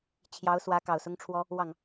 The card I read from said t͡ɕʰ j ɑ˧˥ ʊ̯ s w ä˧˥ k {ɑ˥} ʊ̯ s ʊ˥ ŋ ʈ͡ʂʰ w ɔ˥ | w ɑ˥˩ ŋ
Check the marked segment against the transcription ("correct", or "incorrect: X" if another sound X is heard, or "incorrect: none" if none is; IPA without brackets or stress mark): incorrect: ɑ˨˩